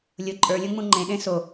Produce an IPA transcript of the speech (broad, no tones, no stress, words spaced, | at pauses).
lʲʊ ǃʼə˞lʲõŋ͡mũ ŋ͡ǃẽɗẽ so